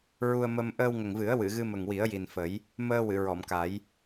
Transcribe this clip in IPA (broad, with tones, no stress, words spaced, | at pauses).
ɹu˧ə̯mə˧m ʔəː˧wŋə˨˩ŋvɨ˨˩˦ə̯ wɨ˨˩˨ɣɨ˧ mə˨˩ŋwi˨˩˦ə̯ ji˨˩nfə˨˩˦j | məː˧ wɨ˨˩˨ɹɔ˨˩˨mka˨˩˦j